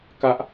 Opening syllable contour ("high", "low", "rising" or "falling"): high